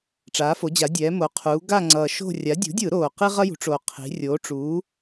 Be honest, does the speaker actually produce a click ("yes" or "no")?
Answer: yes